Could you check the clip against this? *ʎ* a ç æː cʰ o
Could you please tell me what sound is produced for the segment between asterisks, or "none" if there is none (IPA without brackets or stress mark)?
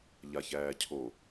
ʎ